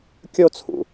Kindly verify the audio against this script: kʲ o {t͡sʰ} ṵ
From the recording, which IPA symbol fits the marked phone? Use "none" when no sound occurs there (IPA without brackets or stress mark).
t͡sʰ